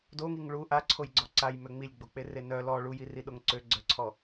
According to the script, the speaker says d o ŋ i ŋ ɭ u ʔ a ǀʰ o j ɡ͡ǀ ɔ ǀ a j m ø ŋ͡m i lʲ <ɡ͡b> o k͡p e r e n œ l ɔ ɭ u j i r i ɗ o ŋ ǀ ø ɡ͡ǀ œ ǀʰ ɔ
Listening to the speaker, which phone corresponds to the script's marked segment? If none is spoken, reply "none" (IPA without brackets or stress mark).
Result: ɡ͡b